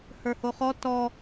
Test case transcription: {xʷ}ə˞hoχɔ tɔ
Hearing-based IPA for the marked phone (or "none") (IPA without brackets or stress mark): h